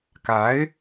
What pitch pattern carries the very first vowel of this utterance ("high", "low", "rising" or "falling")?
rising